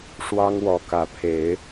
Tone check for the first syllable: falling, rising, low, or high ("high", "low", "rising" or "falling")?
high